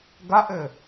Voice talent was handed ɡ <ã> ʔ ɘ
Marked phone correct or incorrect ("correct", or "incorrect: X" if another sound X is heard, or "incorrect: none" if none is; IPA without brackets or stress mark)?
incorrect: a